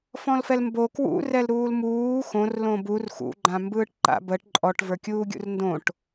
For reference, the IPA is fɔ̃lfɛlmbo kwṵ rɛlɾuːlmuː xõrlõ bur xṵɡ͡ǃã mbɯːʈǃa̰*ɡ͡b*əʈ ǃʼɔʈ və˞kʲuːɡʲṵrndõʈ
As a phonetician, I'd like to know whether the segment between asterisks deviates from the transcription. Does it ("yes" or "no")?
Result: yes